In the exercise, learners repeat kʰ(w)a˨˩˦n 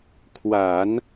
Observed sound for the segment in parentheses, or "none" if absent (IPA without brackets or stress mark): w